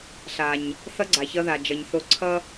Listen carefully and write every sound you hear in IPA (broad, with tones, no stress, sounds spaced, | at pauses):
ɬ a˨ ɲ | θ ʌ˧ ɡ͡ǀ a˨ ç ʌ˧ ð a˨ d͡ʒ ʌ˨ ɲ θ o˧ ǀʰ ʌ˦